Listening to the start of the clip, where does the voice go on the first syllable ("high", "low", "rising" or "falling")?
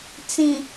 low